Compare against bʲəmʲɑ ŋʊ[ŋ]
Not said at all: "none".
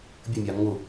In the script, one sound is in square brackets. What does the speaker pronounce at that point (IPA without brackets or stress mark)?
none